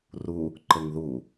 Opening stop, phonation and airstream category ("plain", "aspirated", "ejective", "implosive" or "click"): click